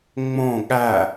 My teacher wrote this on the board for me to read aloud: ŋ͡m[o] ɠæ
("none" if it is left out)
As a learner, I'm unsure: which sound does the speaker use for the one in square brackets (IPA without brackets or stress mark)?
õ